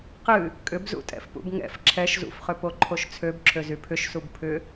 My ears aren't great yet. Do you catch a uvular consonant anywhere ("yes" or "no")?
yes